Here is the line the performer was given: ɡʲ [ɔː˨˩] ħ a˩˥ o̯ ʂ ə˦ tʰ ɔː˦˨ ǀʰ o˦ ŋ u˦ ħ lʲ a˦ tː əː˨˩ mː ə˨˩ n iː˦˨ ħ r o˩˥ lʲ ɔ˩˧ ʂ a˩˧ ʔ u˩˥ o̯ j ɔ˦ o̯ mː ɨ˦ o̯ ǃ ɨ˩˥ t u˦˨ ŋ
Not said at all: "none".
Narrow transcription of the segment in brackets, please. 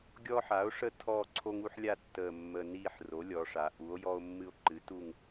ɔː˦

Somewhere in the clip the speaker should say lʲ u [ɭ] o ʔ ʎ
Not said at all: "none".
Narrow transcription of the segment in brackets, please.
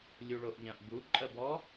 ɭ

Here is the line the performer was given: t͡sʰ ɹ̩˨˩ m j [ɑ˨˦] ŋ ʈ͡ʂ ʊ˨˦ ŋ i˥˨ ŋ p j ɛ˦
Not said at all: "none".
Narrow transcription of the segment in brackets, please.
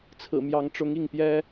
ɑ˨˦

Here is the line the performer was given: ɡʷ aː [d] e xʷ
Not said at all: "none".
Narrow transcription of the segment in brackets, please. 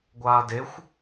d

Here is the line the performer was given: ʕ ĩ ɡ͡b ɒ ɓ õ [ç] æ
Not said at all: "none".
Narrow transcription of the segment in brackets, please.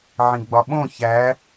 ç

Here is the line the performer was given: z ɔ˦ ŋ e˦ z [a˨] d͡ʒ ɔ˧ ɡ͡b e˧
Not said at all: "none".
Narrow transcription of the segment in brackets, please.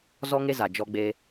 a˨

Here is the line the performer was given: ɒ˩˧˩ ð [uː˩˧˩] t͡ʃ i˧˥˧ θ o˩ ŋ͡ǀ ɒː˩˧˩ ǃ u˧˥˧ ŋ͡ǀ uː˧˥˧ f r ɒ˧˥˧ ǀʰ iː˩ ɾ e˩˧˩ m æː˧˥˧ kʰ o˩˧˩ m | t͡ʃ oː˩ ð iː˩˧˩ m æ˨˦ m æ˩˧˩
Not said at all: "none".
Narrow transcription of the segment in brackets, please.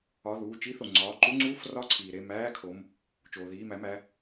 uː˩˧˩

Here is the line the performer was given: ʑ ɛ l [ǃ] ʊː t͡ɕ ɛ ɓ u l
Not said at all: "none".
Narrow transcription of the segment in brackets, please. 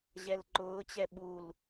ǃ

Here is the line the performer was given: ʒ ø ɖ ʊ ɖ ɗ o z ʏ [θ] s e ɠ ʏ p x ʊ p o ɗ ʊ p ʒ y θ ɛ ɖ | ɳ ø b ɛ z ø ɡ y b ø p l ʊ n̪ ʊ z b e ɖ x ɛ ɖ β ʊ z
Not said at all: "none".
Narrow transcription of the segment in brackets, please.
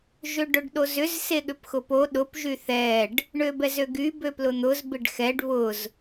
z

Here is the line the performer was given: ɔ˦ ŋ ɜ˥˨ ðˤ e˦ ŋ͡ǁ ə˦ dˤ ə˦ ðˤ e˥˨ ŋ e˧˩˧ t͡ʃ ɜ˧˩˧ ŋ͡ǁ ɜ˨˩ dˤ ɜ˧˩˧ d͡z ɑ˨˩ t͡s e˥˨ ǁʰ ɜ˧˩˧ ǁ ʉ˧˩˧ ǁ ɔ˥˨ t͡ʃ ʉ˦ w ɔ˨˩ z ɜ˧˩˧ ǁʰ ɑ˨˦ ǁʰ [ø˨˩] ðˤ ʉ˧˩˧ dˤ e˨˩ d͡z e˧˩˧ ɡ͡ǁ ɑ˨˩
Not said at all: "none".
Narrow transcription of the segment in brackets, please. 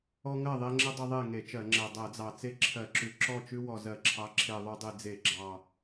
e˨˩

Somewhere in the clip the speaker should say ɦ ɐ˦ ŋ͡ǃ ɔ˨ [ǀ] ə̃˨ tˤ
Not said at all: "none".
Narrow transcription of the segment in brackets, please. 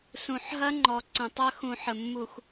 ǀ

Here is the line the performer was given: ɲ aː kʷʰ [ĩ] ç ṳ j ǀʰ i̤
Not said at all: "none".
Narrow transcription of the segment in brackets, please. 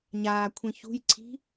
ĩ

